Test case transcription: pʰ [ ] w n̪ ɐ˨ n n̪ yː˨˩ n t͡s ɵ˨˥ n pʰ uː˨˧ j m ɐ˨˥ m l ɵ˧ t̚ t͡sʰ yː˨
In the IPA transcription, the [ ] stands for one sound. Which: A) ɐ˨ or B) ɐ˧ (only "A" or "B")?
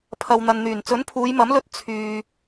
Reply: A